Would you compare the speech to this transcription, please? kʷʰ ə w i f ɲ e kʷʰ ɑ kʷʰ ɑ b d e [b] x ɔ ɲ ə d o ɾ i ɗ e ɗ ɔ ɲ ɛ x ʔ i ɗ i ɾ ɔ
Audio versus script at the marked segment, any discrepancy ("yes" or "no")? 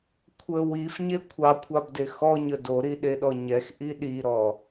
yes